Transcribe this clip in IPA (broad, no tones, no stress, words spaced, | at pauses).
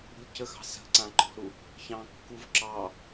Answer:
ṳlʲcəxɑ̤ sə̤ ǀãǃɔ̤ɾu | çɑ̃kːuv ǁɑ